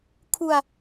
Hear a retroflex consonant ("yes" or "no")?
no